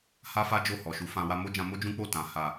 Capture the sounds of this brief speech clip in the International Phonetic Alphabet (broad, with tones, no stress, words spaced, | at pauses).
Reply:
ha˦fa˦ d͡ʒo˦˨hɔ˨ʃu˨˦fã˧ wa˧mo˦d͡ʒã˧ mo˦d͡ʒũ˦k͡po˦˨ tã˨ ha˨